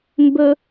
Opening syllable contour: high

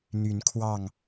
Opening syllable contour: rising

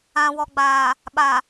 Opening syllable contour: low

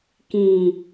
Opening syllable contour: low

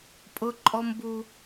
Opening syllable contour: high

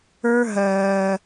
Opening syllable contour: high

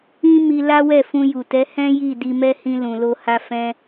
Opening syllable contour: high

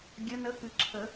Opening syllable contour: rising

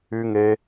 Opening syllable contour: high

